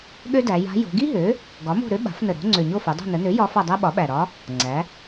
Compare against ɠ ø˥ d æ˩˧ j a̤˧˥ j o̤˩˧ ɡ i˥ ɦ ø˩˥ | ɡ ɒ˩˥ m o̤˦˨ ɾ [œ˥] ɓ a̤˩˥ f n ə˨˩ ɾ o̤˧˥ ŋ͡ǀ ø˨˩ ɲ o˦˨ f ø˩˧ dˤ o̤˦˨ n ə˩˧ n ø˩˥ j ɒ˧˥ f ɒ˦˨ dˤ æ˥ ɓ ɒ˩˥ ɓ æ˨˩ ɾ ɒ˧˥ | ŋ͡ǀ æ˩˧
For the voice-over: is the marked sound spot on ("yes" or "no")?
no